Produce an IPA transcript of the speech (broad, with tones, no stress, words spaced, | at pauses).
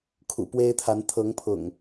kʰṵ˨˩pwe˦ɪ̯t̪ʰa˨˦n t̪ʰɤ˨˦ŋpʰʊ̰˨˩ŋ